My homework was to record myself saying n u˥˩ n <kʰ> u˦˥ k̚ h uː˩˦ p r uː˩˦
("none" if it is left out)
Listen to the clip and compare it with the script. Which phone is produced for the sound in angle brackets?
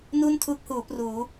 tʰ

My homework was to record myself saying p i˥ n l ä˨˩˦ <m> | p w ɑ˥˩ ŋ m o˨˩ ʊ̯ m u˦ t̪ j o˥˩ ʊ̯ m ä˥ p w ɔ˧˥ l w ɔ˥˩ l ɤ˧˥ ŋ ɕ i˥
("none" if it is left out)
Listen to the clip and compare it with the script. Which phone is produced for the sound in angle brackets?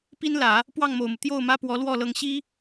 none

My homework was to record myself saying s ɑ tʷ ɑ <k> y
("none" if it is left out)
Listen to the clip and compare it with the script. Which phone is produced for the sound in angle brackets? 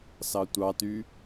t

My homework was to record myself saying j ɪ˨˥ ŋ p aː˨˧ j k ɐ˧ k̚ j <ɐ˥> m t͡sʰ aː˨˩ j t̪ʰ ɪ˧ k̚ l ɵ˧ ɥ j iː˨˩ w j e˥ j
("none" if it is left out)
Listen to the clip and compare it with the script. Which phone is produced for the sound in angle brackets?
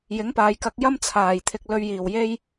ɐ˥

